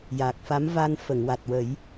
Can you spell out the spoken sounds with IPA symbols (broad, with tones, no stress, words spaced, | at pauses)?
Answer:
jaː˨˩k̚fa˧˥m va˧n fə˨˩˨ŋwa˨˩t̚ wə˨˩˦j